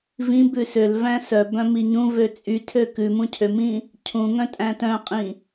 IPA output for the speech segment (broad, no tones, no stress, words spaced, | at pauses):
vĩbʉ søl væ̃sœbœ̃ miɲũvø t͡sʼy tʰøkʉmũ cʰømĩ | cʰũŋœ̃ tʼæ̃tœ̃qʼĩ